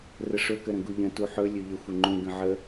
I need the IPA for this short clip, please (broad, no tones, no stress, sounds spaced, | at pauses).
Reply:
r ə ʂ ɵ k ə ɾ ə̃ ɡ u ʎ ə̃ t u ħ ɵ lʲ ɵ ʎ ə xʷ ə ŋ͡ǃ ũ ɡ ə̃ ʕ ə